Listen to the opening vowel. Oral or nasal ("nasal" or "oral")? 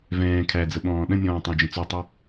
nasal